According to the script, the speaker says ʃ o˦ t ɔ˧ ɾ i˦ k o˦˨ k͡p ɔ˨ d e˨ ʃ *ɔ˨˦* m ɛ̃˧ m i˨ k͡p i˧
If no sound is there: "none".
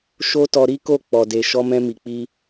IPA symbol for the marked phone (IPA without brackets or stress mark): ɔ˧